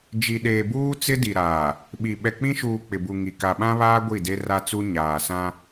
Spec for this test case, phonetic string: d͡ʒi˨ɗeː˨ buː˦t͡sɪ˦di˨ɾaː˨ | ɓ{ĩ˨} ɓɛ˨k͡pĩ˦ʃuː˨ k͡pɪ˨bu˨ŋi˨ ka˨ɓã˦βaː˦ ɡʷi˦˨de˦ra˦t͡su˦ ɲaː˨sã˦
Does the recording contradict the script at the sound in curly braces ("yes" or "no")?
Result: yes